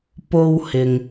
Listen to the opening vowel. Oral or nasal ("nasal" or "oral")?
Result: oral